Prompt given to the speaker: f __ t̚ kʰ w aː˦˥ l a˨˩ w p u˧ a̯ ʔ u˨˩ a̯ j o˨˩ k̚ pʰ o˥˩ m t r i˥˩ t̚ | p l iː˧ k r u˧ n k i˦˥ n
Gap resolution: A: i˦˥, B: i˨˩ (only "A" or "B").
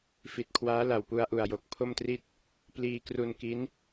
B